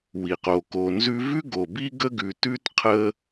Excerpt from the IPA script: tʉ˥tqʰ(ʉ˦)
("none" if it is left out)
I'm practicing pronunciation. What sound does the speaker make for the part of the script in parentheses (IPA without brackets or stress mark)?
ə˦